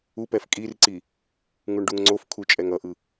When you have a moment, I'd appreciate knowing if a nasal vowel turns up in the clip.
no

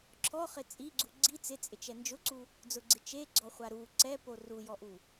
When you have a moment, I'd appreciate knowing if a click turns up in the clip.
yes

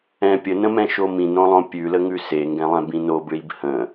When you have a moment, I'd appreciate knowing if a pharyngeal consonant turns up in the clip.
no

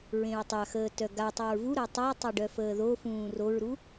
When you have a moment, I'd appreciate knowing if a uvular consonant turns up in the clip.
no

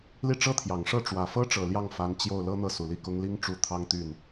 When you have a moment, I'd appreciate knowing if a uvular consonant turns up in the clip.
no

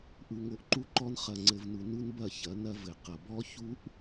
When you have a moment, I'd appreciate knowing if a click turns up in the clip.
yes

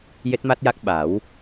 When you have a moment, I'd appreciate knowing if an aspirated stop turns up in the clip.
no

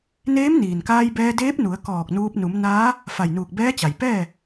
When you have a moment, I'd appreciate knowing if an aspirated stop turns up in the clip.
no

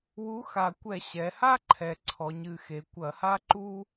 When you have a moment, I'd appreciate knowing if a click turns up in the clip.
yes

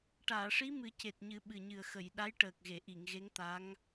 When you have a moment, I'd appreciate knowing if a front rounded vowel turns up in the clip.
no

